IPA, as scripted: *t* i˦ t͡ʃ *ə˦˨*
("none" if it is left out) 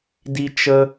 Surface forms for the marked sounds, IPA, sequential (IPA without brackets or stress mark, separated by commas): d, ə˦